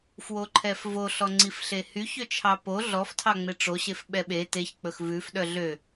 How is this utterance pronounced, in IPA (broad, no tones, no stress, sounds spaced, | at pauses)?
f w o ǃʰ ɛ f v o ɬ ɔ ŋ͡ǀ i f ɬ e h y ç ø t͡ʃʰ ɑ p o ɮ ɔ f tʰ ɑ ŋ͡m e ʈ͡ʂ o ɕ e f ɓ ɛ ɓ e t e ç k͡p ɵ x v ʉ f ɗ œ ɮ ø